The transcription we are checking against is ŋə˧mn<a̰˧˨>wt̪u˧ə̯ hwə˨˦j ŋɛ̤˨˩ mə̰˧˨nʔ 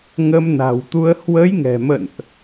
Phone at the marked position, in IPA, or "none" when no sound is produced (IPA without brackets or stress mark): a̤˨˩